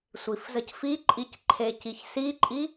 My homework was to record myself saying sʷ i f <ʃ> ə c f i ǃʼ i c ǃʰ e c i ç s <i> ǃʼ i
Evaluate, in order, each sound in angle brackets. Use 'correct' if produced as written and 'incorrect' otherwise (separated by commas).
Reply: incorrect, correct